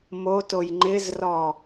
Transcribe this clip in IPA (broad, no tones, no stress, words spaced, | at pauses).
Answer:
motoj ŋ͡ǃɪzrɔ